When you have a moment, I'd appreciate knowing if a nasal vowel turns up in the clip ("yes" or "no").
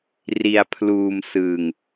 no